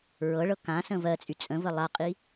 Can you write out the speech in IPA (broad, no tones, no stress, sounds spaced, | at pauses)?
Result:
ɹ ɤ ɭ ɤ k ã s ə̃ v ɜ t͡sʼ y t͡sʼ ə̃ v ə lˠ a qʼ i